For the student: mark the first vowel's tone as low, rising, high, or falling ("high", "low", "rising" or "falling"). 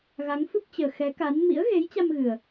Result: rising